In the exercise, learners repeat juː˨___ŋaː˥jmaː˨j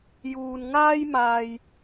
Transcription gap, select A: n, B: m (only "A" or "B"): A